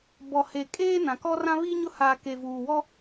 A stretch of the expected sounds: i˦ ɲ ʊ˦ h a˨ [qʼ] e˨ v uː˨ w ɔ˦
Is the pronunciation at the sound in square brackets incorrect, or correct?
incorrect